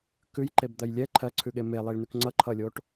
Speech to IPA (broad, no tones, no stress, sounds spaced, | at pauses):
k ʉ j ǃ e b d̪ ɜ j lʲ ɛ ǃʰ ɜ ǀʰ ʉ ɠ e m e lˠ i ɭ n ʉ k ŋ͡ǀ ʌ ǃʰ ʌ lʲ o ʈ